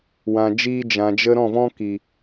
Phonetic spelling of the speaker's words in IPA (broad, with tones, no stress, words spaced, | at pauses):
wã˨d͡ʒiː˧ d͡ʒã˨d͡ʒə˧ ɾɔ̃˦˨vɔ̃˦ki˨